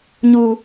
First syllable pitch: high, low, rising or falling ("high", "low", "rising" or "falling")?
high